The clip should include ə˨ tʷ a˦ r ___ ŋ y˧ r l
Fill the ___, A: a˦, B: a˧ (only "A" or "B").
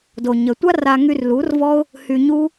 B